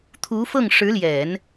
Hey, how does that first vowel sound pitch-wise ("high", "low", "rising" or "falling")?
rising